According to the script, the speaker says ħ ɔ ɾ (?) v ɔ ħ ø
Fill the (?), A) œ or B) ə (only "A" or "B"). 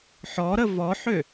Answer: B